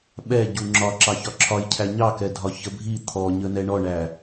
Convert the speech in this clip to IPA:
ɓ ɛ ɟ u ŋ͡ǁ ɒ ǁ ɑ ç ɒ ǁʰ ɒ j cʰ æ ɲ ɑ k ɛ dʱ ɒ ç ə bʱ i t̪ʰ ɔ ɲ ə n ɛ ɳ ɔ ɳ æ

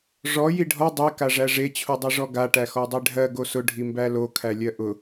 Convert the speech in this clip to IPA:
ʐ ɔ j i ɖʱ ɔ dˤ i k a ʐ æ ʐ e t͡ɕʰ u dˤ e ʐ ɔ ɡ a ʈ æ x ɔ dˤ e ɖʱ ɜ ɡ o s ʊ ɖʱ i m b æ l o kʰ æ lʲ ɜ ʔ ʊ

